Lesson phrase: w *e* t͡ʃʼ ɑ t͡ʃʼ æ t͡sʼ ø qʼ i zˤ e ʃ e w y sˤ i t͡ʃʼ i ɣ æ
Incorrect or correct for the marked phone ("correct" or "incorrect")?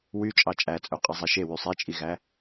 incorrect